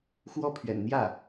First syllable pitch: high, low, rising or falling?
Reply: falling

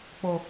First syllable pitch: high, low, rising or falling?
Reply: low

